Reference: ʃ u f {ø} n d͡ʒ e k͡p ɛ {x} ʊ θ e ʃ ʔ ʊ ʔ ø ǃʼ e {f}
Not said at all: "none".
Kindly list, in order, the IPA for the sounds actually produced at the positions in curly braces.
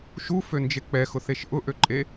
ø, x, none

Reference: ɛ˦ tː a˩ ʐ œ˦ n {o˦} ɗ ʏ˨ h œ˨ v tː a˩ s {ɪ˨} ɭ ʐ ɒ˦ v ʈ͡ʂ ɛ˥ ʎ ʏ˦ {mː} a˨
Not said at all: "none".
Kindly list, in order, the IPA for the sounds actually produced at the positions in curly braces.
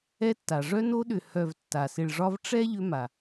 o˦, ɪ˨, m

